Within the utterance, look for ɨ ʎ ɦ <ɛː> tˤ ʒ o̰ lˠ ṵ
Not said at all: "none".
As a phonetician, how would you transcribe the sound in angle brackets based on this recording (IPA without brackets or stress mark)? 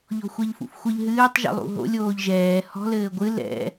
ɨː